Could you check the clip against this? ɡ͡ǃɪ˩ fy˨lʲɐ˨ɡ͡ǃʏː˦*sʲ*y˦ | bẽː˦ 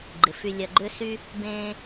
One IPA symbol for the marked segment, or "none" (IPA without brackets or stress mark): s